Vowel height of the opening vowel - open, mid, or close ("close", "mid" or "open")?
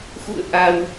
close